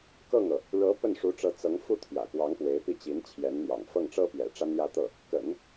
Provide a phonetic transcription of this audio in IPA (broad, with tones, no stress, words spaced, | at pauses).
kɤ˥˩ŋɤ˩ | ɻɤ˧˥ pə˥˩nʂu˧˥ʈ͡ʂɤ˧˥ t͡sɤ˧˥ŋ fu˥˩t̪ʰjä̰˨˩kwɑ˧˥ŋ pwe˧˥ɪ̯pi˥˩t͡ɕi˧˥n t͡ɕʰjɛ˧˥nn̪jɑ̰˨˩ŋ fɤ˥˩ŋʈ͡ʂɤ˥pjɛ̰˨˩ ʈ͡ʂa˥njä˥˧t̪ɤ˥˩ | kə̰˨˩˦n